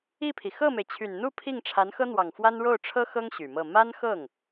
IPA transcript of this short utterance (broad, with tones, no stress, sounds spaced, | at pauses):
i˥˩ pʰ i˩ x ɤ˥˩ m e˩ ɪ̯ t͡ɕʰ y˨˩ n n̪ u˥˧ pʰ i˥˩ ŋ ʈ͡ʂʰ a˧˥ n x ɤ˥ n̪ w ɑ˨˩ ŋ f w a˥ n ɻ o˥˩ ʊ̯ ʈ͡ʂʰ ɤ˥ x ɤ˥ ŋ ɕ y˨˩ m ɤ˥˩ m a˥ n x ɤ˥˩ ŋ